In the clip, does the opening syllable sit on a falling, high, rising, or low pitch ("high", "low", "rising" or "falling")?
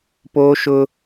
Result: high